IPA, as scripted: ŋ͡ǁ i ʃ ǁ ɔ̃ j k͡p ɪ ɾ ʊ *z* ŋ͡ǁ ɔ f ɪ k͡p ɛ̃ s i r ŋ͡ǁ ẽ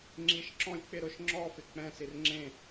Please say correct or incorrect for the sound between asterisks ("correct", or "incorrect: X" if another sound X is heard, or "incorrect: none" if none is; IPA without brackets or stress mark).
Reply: incorrect: ʃ